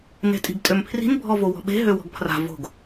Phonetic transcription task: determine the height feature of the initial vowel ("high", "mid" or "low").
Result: mid